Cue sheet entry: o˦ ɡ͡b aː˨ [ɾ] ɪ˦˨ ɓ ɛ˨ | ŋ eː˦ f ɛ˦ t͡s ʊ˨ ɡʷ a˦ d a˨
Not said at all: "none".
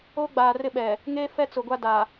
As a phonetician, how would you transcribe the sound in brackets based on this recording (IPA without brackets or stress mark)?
r